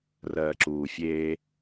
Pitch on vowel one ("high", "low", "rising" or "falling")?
low